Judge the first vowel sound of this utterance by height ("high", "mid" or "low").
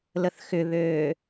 mid